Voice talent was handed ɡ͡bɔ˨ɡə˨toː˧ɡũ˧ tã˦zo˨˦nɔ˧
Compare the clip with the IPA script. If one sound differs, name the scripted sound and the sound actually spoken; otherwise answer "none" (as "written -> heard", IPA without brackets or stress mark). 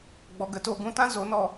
none